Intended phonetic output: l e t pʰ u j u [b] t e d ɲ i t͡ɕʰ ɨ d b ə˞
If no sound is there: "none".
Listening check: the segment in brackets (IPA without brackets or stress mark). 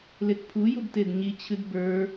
b